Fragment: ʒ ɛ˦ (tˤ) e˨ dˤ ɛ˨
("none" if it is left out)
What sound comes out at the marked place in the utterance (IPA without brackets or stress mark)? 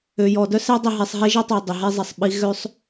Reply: tˤ